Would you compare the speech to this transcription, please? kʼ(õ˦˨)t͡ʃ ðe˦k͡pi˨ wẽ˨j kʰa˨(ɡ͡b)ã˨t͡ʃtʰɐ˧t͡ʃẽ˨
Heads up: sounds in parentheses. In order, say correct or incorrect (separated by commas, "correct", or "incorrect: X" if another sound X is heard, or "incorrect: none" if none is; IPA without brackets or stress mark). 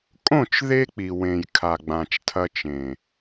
correct, correct